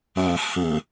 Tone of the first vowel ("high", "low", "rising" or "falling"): low